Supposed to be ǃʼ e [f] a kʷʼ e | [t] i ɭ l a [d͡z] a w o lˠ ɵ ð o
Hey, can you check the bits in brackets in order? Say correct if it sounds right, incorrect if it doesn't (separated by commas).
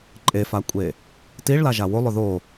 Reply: correct, correct, incorrect